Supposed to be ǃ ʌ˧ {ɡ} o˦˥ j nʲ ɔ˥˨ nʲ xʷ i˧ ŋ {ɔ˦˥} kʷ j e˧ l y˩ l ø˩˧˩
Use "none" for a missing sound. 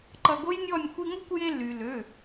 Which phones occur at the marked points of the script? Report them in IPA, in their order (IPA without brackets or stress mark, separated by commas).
ɡ, ʌ˦˥